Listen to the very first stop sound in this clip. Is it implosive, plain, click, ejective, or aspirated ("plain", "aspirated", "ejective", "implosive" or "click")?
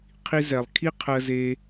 aspirated